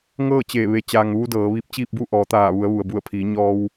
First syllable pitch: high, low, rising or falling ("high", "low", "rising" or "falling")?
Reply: falling